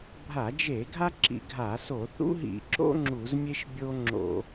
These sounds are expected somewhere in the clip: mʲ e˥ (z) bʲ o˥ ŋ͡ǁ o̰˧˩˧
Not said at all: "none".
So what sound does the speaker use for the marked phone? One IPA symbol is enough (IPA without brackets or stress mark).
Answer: ʃ